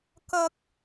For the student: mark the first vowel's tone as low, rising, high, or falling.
high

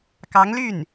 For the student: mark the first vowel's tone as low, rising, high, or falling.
rising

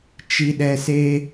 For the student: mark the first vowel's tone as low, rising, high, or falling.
low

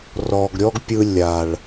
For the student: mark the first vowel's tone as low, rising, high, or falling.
low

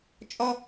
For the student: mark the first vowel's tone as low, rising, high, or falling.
high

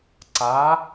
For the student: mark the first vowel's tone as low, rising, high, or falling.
rising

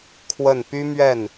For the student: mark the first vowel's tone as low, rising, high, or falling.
falling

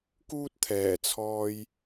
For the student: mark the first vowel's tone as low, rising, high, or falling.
high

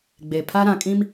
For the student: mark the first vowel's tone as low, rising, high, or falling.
low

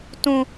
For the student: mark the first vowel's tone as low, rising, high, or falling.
high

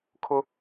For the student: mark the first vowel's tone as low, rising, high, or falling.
high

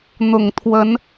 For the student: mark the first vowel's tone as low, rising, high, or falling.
low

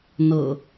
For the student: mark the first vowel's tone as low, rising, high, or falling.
low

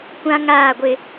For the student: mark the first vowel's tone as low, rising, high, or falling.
high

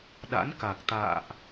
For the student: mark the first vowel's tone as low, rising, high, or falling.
rising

